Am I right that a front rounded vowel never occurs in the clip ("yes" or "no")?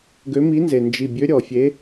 no